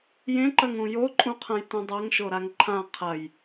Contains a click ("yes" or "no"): yes